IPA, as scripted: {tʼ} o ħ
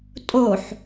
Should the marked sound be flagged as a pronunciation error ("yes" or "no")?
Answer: no